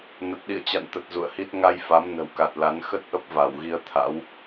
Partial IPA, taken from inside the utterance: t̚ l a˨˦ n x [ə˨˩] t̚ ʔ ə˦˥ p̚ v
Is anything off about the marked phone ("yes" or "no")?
yes